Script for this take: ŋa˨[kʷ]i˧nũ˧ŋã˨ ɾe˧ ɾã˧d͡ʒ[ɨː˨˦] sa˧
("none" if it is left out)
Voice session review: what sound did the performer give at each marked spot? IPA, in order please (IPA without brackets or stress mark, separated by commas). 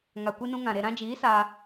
kʷ, iː˨˦